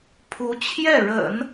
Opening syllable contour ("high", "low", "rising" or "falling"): rising